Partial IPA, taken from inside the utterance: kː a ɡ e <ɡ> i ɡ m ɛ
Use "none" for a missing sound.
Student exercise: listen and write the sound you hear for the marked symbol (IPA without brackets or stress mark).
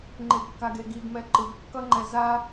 ɡ